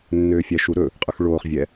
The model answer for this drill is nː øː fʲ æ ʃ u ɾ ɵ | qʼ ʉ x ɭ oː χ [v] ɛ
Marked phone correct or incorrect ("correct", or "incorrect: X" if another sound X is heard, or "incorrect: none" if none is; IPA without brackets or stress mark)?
incorrect: vʲ